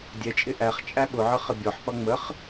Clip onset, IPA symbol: dʲ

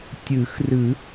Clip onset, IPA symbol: tʲ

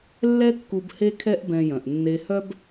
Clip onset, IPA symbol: lː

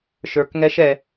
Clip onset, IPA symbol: ʃ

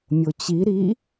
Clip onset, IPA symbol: mʲ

